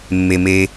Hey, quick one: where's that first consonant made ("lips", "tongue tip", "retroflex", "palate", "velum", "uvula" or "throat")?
lips